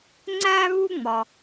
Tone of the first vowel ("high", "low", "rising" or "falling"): high